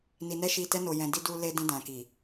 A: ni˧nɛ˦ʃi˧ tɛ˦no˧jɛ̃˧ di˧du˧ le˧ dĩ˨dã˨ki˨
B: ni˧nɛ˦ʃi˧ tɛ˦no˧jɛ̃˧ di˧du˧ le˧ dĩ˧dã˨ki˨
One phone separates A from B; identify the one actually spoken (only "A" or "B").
B